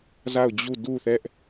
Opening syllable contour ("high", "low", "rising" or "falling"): falling